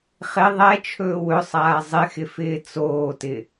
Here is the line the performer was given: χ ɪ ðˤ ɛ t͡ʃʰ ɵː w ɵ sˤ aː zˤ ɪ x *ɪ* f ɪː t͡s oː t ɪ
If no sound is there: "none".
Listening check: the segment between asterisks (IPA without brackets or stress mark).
ɪ